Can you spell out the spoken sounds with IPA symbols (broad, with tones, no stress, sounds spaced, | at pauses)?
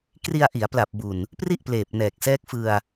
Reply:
k r i˧ a̯ ʔ i˩˦ a̯ p l a˨˩ p̚ b u˨˩ n | p r i˥˩ ʔ p l eː˨˩ p̚ n ɛː˨˩ k̚ s ɛː˦˥ k̚ f ɯ˧ a̯